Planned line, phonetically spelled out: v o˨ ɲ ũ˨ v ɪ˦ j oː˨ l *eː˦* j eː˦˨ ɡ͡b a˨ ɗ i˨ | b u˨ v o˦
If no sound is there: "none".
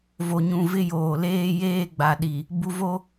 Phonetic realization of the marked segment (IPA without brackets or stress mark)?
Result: eː˦